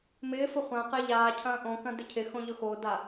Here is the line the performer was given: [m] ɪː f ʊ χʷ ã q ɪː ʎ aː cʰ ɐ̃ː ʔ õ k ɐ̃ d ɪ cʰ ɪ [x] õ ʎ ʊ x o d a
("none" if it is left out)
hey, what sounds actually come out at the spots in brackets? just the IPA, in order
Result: m, x

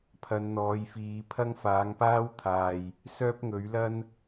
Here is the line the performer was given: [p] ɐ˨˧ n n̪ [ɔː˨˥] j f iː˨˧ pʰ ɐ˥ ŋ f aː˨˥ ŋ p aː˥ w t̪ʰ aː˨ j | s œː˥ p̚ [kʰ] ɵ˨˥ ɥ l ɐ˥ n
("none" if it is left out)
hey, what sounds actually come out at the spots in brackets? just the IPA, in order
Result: pʰ, ɔː˨˧, ŋ

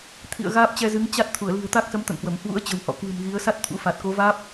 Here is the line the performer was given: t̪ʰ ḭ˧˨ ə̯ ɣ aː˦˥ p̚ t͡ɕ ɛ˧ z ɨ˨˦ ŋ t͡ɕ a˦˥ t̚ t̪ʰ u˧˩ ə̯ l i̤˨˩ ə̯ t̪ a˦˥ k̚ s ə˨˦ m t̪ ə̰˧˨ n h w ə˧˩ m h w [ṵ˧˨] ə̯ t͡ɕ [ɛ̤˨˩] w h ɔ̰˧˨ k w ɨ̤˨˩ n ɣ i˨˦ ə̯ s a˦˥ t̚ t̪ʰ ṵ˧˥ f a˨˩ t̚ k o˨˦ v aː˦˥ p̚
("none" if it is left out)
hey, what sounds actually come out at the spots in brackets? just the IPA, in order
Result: ṵ˧˥, ə̤˨˩

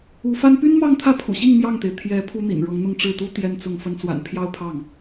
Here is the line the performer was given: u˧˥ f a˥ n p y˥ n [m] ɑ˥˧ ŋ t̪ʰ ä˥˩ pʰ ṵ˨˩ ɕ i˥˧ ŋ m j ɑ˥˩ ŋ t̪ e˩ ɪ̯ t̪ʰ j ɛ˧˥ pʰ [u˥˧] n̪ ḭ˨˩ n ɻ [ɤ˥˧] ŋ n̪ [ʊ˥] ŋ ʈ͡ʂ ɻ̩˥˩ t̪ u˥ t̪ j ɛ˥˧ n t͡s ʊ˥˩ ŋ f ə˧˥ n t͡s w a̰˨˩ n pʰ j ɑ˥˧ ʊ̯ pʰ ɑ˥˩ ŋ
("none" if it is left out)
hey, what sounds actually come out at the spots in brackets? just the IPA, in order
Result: m, u˥, ɤ˧˥, ʊ˥˧

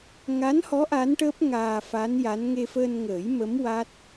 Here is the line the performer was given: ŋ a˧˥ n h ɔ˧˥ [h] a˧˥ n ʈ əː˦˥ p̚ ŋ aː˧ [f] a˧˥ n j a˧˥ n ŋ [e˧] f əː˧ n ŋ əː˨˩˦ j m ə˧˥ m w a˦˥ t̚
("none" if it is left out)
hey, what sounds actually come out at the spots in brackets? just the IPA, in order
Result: ʔ, f, e˧

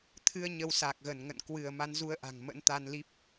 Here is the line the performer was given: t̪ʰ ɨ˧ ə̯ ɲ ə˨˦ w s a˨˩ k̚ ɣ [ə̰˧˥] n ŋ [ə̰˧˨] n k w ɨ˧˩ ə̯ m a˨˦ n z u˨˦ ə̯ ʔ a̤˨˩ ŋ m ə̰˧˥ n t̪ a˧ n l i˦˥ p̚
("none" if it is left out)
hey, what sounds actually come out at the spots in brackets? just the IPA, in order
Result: ə˧˩, ə̰˧˨

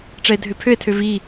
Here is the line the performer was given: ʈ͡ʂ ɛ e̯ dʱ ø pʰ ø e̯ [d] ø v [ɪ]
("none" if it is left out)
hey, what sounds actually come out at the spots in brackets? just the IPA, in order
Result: tʰ, i

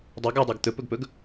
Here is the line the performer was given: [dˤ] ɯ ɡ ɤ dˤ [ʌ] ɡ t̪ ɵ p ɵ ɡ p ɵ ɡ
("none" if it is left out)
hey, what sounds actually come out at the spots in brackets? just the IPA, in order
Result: dˤ, a

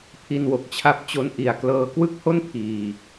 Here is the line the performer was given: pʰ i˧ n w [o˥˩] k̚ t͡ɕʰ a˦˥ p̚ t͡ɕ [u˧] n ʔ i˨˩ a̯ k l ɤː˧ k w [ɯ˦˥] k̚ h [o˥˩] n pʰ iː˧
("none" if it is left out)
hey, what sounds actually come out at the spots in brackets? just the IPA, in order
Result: o˨˩, o˧, ɯ˥˩, o˥˩

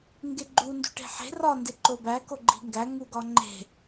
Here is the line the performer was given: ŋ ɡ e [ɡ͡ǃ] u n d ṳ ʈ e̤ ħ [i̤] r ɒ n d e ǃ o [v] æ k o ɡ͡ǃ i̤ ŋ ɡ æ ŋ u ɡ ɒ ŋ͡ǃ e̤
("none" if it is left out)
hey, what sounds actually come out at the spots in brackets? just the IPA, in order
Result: ɡ͡ǃ, e̤, b

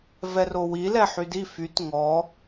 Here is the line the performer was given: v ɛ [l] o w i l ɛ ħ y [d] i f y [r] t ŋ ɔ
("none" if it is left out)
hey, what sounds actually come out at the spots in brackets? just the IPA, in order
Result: r, d, none

